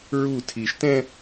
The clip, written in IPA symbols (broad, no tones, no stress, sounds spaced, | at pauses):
ɹ u tʰ i ʃ t ɛ̃